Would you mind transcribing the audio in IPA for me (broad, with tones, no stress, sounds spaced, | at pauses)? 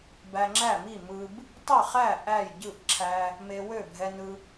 b æ˧ ŋ͡ǁ æ˥˩ m i˥˩ m ɯ˧ b | tˤ ɛ˥˩ χ æ˥˩ ʔ æ˥˩ j ɟ ɯ˥˩ ʔ ǁʰ æ˧ | m e˧ w ø˥˩ bʱ ɛ˧ n ɯ˧